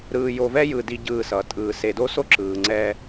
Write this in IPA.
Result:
ɾ ɯː˨ j o˨ v ɛ˦ j ɯ˨ d i˦ ɟ ɯː˦˨ s ʌ˨ tʼ ɯː˨ s e˨ d o˦ s o˦ ǁ ɯː˨ ŋ͡ǀ ɛː˦

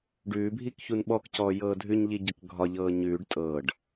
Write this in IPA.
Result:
ɖ ʉː bʱ i k ç u n ɓ ɔ k c ɔː j ɤː dʱ ʉ ɲ ʎ i ɟ ɤ k ɡʱ ɒ ʎ ɤː ɲ ʉː ɖ tʼ ɤː ɖ

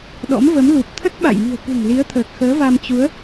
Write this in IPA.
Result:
ɗ ɔ̰˧˥ m v ə˨˦ m l u˨˩ p̚ t̪ʰ ə˦˥ t̚ ɓ a̰˧˨ j m i̤˨˩ ə̯ k ṳ˨˩ ŋ l i˨˦ ə̯ t̪ʰ əː˨˩ k̚ x əː˨˦ v a˧ m t͡ɕ u˨˦ ə̯

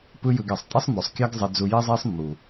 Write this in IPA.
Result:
p ɯ˦ j ɯ˧ ɡ ɛ˨ sˤ tʼ i˦ sˤ m o˨ sˤ kʲ a˦ ɡ zˤ e˦ d͡z u˦ j i˦ zˤ e˦ sˤ mː u˨

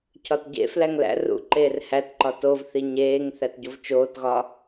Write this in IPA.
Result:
cʰ ɒ t ɟ ḛ f l æ ŋ l æ̰ r ṵ ǃ eː r h æ t ǃ ɒ t o v θ i ɲ eː ŋ θ æ t ɟ o v t͡ʃ oː t ɣ ɒ

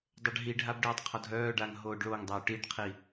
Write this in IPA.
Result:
dˤ ø ɖ ɦ i ɖʱ a b ɖ œː tˤ qʰ ɔ dʱ œː ɖ a ŋ ɦ oː ɖ ɭ o ŋ dˤ ɛ u̯ ʈ i ɖ qʰ i

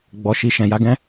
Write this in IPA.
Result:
ɡ͡b ɔ˧ ʃ i˧ ʃ ɛ̃˨ j a˨˦ ɡ ɛ̃˦

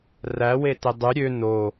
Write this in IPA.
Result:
r æ w e t e dˤ y ɾʲ ø n o

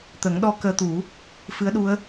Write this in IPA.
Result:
t̪ ə˨˩˦ ŋ ɗ ɔ˧ k əː˧ t̪ u˨˩˦ | f ɨ˧˥ ə̯ ɗ u˧˥ ə̯

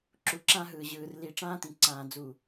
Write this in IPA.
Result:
ǁ u˨ ǁ ã˦ ɦ ɯː˨ ʑ ɯː˨ r l i˨ ʈ͡ʂ ãː˦ t̪ ĩ˨ ǀ ãː˨ d͡z u˨

